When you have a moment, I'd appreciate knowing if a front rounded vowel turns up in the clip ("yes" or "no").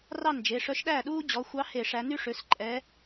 yes